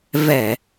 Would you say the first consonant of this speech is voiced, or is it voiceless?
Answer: voiced